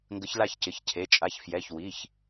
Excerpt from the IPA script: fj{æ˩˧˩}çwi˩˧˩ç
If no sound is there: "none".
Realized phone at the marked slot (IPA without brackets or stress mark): ɛ˩˧˩